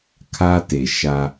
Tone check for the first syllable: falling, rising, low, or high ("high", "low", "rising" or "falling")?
high